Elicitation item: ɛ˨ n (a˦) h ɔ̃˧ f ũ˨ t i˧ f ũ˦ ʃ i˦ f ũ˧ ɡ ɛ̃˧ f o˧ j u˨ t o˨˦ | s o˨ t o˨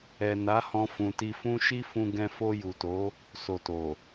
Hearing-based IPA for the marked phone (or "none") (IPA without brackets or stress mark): a˨˦